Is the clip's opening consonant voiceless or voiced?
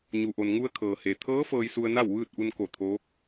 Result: voiced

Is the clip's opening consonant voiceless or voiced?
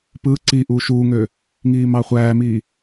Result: voiceless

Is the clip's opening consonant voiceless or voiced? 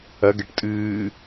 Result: voiced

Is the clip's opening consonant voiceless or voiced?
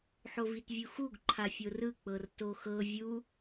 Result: voiceless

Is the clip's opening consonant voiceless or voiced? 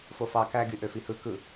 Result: voiceless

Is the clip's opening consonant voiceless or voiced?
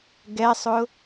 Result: voiced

